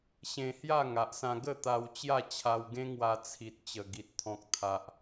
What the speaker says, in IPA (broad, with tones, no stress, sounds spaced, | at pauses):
ɕ ẽ˧ h j a˥˧ ŋ a˨ ʔ s ã˧ ɡ ə˥˧ t̪ a˧ w t͡ɕ j a˥˧ t͡ɕʰ a˧ w ɡ ẽ˦ ŋ w a˧ t͡sʰ i˨ t̚ t͡ɕ ə˨˩ ɡ i˨ t̚ t̪ʰ ɔ̃˨ k̚ t̪ʰ a˨ ʔ